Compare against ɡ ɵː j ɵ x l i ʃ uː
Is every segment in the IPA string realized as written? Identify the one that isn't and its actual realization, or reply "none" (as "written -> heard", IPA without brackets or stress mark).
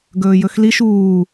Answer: none